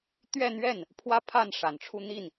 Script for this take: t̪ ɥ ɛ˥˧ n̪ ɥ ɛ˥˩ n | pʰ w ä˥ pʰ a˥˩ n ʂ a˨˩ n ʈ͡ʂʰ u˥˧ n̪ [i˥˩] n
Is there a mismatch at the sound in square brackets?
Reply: no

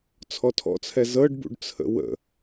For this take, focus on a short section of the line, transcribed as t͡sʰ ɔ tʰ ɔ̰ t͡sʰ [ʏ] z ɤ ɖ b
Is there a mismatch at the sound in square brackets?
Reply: yes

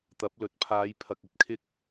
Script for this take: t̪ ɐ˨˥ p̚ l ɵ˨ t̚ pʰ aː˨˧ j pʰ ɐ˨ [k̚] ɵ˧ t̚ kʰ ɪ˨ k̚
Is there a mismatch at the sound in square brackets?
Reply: no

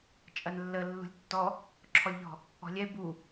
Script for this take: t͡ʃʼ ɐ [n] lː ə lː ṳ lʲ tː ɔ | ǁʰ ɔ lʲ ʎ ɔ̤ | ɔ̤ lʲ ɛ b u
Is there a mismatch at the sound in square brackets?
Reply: no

